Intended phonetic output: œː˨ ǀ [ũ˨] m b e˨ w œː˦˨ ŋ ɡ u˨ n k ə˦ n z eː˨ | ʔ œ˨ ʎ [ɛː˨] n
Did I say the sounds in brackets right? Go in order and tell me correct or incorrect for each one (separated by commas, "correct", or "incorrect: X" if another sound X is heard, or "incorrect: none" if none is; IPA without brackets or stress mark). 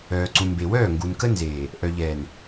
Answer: correct, correct